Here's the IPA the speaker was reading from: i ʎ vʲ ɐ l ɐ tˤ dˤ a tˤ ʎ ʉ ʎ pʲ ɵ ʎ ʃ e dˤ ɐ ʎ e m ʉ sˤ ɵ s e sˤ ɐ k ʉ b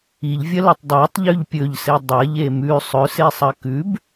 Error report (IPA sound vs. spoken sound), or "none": ʃ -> s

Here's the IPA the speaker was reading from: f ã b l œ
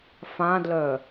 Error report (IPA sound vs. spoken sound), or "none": b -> d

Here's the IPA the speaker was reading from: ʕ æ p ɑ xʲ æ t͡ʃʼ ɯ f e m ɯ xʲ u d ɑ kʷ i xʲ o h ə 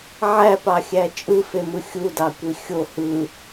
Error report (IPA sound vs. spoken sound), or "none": ə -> ɯ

